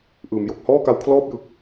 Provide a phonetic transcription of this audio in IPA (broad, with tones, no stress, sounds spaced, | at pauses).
ʔ ɯː˩˦ m j o˨˩ k̚ h ɔː˥˩ k a˧ w kʰ l ɔː˥˩ p̚ j ɯ˨˩ k̚